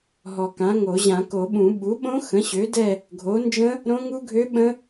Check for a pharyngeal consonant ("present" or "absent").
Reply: absent